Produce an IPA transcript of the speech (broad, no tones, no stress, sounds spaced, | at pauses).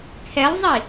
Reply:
kʰ ɛ lˠ zˤ i